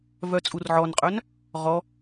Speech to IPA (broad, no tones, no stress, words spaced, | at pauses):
vœt͡sʼurʕɔnqʼœn | ʁɔ